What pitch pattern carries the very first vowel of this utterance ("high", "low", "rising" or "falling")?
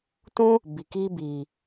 high